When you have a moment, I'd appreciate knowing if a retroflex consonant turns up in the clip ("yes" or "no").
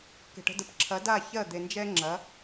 yes